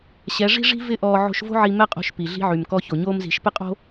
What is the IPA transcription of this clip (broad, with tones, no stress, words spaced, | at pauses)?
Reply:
ɕɛ˨˦ ʐi̤˦ʐi̤˦ vɪ˦ʔɔː˧ ʕo̤˧ʃvo̤˦ʕi˧ mɛ˦qʼo̤˧ʃ pi˨ɮi̤˦ʕy˨m kɔ˧ço˨ ɲoː˦mzi̤˨˦ʃ pɪ˦qʼo̤˦